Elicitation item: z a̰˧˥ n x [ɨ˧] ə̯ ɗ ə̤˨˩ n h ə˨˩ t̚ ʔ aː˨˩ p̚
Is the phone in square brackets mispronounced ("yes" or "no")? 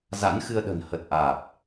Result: no